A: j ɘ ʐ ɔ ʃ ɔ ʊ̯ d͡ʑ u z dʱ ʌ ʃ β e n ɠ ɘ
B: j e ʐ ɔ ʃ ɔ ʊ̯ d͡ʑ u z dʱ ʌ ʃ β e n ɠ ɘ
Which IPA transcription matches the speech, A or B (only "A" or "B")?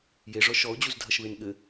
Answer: B